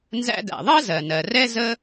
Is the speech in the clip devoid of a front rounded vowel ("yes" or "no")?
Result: yes